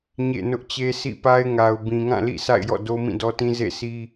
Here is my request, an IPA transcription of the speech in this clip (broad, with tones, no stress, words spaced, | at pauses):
ɲḛ˦˨ nʊ˦ʔt͡ɕe˦ sḭ˦˨pa˦ɪ̯ŋa˨ʊ̯ bĩ˨ŋã˦˨lḭ˦˨ sa̰˦˨ɪ̯jɔ̰˦˨ do˦mĩ˦˨dɔ˦tĩ˦ zḛ˦˨sʰi˦